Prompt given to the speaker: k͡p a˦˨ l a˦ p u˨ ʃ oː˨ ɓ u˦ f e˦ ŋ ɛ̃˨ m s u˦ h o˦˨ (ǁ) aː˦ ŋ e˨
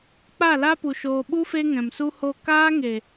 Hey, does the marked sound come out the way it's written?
no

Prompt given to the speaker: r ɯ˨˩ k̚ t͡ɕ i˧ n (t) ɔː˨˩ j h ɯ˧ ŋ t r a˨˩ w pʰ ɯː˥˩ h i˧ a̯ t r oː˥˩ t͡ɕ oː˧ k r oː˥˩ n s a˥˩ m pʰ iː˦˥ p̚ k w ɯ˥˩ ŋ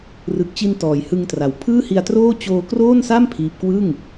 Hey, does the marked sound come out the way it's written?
yes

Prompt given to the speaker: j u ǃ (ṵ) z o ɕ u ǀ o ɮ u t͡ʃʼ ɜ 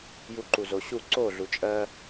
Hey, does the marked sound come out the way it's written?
no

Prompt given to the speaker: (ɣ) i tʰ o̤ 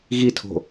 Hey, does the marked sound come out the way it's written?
yes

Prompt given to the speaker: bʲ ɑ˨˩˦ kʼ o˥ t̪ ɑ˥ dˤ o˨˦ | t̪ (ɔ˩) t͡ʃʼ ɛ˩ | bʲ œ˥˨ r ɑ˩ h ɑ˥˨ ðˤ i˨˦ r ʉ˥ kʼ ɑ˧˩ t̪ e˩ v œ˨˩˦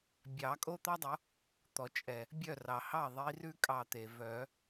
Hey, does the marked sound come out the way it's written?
yes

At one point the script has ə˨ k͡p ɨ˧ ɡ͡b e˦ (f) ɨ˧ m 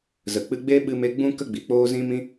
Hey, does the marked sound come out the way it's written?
no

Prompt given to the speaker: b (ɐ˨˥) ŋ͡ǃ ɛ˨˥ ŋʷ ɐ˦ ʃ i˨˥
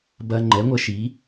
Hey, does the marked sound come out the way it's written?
no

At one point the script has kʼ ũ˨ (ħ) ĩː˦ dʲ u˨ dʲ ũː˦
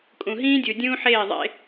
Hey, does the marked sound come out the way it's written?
no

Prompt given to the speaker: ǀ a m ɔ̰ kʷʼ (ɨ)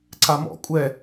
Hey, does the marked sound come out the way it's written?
no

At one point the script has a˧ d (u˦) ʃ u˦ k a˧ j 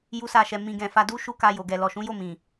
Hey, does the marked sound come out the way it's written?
yes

